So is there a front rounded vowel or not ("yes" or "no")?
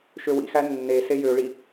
yes